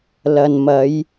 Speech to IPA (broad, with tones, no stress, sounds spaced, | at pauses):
l ɐ˨ n m ɐ˨˧ j